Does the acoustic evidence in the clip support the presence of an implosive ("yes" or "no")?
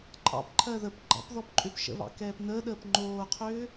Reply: yes